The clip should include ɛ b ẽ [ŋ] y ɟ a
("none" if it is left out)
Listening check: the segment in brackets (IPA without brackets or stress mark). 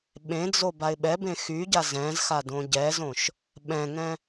x